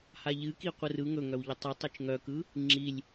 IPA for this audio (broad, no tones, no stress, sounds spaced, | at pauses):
h a ʎ ɨ k i qʷ ɯ r ɯ ŋ ɵ ŋ œ w ʎ ə tˤ i tˤ ɯ t͡ʃ ŋ œ k ɯ | ŋ͡ǁ i lʲ